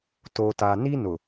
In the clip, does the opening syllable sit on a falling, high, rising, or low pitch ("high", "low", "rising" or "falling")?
low